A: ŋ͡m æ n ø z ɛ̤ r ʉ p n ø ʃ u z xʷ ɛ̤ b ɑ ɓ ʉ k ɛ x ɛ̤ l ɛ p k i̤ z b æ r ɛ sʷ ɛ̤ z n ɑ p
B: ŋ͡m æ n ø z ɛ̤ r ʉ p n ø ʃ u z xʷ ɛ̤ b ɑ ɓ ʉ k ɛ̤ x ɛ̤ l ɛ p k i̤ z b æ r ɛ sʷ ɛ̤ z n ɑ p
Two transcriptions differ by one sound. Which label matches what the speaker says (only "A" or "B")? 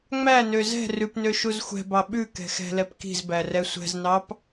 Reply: B